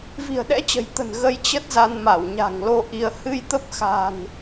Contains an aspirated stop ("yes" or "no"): no